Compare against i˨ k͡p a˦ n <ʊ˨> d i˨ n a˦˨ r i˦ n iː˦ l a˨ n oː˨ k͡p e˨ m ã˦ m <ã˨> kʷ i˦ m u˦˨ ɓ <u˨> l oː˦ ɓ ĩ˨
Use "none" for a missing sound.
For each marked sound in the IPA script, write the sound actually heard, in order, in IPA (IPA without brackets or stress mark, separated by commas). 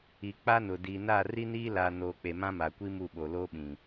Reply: ʊ˨, a˨, o˨